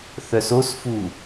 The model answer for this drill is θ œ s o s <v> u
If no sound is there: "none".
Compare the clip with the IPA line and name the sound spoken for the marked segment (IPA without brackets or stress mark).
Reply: f